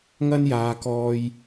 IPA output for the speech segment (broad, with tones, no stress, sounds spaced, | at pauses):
ŋ ɐ˥ n j aː˨˧ k ɔː˧ j